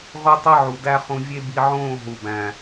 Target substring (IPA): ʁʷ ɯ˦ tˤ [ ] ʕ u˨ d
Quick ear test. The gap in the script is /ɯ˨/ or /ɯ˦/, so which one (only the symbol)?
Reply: ɯ˦